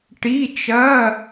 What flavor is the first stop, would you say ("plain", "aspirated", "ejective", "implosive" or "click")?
plain